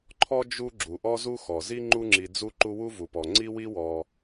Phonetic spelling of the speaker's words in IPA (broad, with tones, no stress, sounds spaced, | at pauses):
ǃʰ ɔ˥ d͡ʒ u˦ ɡ͡ǁ u˩ ʔ ɔ˥ z u˥ x ɔ˩ z i˦ ŋ͡ǃ u˥ ŋ͡ǁ i˨ d͡z u˦ ǃ u˦ w u˥ v u˩ p ɔ˩ ŋ͡ǀ i˥ w i˥ w ɔ˨